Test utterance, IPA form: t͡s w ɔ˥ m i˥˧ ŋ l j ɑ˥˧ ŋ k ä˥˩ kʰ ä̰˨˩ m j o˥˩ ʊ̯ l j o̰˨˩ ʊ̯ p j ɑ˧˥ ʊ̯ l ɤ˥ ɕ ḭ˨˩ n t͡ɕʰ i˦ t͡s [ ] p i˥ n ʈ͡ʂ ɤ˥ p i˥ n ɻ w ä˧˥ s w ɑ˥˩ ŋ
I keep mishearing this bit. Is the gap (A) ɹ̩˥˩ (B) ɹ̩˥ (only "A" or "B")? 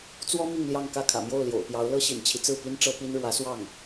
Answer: A